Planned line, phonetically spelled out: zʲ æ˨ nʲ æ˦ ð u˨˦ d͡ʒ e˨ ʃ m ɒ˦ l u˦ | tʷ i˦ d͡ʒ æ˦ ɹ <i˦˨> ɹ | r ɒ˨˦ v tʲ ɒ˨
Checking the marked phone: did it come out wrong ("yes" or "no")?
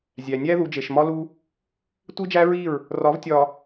no